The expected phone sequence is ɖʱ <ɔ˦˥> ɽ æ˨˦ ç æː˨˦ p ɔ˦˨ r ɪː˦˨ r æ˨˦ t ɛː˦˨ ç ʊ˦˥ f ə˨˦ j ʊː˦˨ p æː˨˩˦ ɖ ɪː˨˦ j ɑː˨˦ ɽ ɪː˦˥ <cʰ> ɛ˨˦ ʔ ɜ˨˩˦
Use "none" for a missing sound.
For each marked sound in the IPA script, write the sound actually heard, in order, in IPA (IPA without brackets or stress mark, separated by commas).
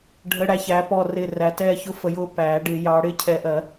ə˦˥, cʰ